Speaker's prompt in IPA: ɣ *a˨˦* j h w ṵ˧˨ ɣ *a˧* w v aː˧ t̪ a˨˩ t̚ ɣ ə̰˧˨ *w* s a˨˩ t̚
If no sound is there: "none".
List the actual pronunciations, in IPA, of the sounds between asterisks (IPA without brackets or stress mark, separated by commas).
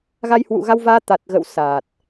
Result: a˧, a˧, w